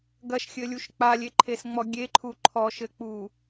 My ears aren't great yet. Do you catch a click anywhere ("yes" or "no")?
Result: yes